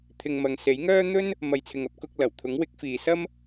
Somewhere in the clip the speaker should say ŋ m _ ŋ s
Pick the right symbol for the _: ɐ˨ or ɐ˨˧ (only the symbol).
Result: ɐ˨